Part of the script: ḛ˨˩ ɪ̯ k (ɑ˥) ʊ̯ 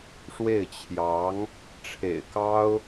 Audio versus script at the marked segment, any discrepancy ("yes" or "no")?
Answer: no